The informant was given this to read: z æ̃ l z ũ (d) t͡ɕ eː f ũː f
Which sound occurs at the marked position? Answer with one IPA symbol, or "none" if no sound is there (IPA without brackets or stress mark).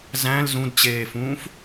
d